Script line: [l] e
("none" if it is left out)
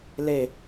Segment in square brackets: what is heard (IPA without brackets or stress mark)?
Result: l